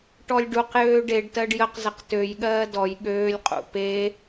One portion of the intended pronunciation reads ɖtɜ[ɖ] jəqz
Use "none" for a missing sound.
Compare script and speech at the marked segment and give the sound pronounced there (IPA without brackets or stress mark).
ɖ